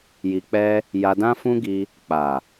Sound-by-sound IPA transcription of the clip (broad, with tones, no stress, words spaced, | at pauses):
ji˧k͡pɛ˦ | ja˧dã˦fũ˦ɡi˧ | k͡pa˨